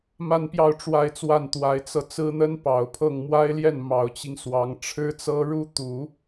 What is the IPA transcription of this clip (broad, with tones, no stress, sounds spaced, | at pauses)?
m a˥˧ n p j ɑ˥˧ ʊ̯ ʈ͡ʂ w a˥˧ ɪ̯ t͡s w a˥˩ n t̪ w a˧˥ ɪ̯ t͡s ɤ˧ t͡s ɹ̩˥ n̪ ə˥ n p ɑ˨˩ ʊ̯ pʰ ɤ˥˩ ŋ m w a˥ ɪ̯ l j ɛ˥˩ n m ɑ˨˩ ʊ̯ t͡ɕ i˦ ŋ s w ɑ˧˥ ŋ ʈ͡ʂʰ ɻ̩˥ t͡s ɤ˥ ɻ u˥ t̪ u˨˩˦